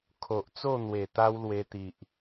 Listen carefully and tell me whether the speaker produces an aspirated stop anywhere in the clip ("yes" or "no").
yes